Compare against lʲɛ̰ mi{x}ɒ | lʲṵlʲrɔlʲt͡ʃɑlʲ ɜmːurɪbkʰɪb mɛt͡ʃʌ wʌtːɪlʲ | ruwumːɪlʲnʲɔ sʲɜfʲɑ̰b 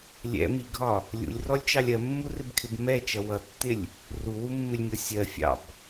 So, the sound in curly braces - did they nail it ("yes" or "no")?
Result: no